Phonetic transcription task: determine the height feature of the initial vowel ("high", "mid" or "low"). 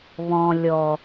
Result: mid